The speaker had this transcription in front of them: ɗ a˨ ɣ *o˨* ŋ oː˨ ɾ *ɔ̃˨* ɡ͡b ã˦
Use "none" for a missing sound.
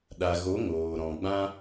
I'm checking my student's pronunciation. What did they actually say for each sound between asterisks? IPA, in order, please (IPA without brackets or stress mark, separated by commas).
o˨˦, ɔ̃˨